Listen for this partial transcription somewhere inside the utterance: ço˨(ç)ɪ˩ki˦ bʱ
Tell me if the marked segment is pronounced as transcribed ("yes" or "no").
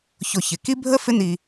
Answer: yes